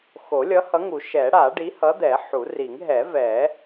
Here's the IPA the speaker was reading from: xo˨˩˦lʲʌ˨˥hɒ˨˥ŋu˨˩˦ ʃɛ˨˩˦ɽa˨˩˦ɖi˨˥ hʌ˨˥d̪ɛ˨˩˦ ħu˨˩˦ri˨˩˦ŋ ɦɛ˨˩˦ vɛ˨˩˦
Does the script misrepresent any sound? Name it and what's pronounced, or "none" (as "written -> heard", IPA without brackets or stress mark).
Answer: ɒ˨˥ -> ʌ˨˥